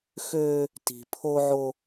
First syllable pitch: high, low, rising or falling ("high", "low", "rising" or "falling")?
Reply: high